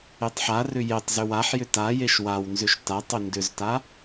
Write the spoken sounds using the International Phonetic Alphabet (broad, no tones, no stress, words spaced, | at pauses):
etˤħarʏ jetˤzʏw aħjʏ tajeʃ wawnzʏʃ tatˤʏ ndʏzta